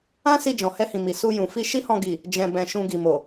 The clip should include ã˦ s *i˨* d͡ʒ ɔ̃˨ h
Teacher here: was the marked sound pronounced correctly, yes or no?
no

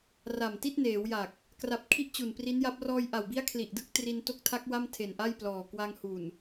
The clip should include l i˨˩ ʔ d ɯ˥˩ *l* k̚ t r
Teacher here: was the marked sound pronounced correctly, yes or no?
no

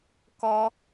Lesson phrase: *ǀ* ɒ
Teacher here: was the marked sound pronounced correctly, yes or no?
no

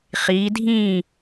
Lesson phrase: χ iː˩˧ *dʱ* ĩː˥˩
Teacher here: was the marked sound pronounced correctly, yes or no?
yes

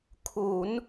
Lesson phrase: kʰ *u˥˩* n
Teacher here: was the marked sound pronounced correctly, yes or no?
no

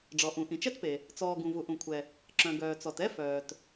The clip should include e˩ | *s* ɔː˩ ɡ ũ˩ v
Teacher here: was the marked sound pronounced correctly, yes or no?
no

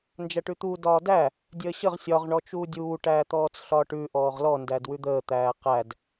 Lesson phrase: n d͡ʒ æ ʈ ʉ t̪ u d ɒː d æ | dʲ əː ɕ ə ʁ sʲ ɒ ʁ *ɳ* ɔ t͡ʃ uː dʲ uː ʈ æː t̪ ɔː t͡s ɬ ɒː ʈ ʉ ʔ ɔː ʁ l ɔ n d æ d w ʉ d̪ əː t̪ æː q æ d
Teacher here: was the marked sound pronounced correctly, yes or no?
yes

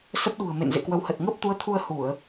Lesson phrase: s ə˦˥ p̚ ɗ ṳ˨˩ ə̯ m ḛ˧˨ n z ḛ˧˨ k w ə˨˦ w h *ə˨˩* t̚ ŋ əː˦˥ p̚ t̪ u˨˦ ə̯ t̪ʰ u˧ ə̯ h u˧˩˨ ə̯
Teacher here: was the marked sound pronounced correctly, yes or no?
yes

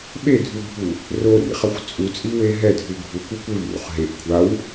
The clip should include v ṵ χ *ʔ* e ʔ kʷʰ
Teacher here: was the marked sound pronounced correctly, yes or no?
no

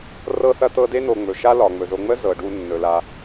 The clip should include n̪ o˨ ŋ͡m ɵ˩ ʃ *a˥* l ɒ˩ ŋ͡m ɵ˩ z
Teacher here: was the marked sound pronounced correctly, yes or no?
no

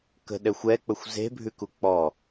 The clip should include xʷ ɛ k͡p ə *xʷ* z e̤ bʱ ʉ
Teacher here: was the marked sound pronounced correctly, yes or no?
yes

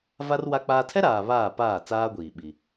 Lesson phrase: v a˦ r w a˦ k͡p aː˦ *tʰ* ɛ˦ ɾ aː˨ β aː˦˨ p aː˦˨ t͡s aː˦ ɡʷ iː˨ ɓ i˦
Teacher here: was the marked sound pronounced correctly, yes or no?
yes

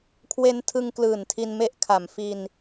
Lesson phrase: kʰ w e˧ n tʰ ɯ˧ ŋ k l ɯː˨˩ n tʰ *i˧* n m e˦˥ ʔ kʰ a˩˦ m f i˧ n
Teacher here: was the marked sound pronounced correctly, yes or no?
yes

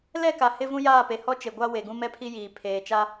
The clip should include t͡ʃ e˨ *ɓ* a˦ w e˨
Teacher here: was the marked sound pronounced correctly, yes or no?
no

